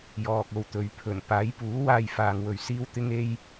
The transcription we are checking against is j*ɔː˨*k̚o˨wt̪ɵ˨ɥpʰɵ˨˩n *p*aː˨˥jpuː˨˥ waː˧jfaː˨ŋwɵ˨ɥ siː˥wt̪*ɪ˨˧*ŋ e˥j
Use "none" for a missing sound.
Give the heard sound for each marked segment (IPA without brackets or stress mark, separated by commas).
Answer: ɔː˨, p, ɪ˥